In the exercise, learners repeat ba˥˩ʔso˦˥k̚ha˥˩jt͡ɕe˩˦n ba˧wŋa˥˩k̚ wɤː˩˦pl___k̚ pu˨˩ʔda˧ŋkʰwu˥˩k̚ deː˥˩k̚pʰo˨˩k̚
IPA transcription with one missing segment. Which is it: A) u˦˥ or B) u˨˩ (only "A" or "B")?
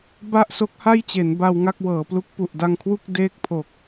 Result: A